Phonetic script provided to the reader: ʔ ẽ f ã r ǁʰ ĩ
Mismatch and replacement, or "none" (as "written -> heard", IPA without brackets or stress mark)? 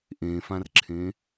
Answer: ĩ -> ẽ